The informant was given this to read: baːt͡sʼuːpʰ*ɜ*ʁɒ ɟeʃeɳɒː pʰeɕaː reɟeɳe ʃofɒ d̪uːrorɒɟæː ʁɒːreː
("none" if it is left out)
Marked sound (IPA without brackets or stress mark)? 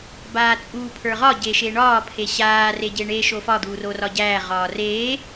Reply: ə˞